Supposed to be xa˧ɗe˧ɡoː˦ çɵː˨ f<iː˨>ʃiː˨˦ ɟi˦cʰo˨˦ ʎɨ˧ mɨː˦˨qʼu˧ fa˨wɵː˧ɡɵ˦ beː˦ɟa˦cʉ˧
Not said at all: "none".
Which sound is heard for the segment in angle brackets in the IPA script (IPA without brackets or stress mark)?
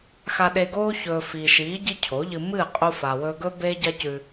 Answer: iː˨